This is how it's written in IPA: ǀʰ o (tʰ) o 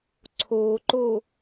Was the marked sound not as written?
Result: yes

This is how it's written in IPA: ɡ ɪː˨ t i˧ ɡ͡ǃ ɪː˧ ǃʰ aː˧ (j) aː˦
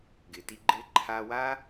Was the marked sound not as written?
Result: yes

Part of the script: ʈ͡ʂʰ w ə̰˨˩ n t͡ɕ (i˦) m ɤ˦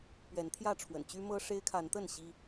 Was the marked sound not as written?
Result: yes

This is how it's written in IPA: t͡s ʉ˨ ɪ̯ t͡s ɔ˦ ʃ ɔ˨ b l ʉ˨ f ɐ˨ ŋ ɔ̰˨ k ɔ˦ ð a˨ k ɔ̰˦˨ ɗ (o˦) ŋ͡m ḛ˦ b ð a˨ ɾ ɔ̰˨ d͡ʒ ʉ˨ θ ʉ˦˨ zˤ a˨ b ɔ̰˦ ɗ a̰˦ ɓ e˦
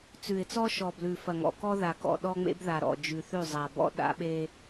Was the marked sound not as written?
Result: yes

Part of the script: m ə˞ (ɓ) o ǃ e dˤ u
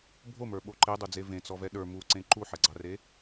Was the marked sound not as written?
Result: no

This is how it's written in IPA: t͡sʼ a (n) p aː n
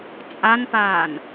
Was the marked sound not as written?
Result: no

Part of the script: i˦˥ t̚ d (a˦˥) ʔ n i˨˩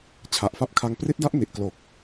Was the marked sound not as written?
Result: no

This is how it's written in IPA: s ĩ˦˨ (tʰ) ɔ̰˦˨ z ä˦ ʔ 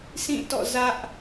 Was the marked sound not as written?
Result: yes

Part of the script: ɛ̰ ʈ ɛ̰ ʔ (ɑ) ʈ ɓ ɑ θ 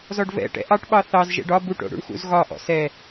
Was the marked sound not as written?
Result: no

